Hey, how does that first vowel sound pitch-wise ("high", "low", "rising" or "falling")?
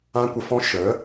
high